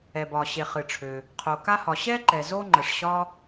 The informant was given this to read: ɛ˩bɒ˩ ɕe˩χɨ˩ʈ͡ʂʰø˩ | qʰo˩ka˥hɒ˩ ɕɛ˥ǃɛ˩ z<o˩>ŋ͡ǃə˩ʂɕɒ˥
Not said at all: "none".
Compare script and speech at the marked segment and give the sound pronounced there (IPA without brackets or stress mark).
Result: o˥